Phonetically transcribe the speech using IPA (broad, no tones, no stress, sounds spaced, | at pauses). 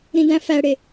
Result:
ɾ ĩ d æ̃ f æ ɽ e